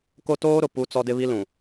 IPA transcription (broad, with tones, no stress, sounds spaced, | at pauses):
k o˦ t oː˦ ɾ ʊ˨ p u˦ t͡s ɔ˦ d ɪ˦ β i˦ l ũ˨